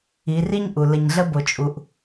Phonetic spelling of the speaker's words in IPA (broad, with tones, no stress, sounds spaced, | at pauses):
i˩˧ r i˥ ɲ ʔ u˩ l ə˩ ɲ ɮ ə˧ b o˩ t͡ʃʼ u˩ ʔ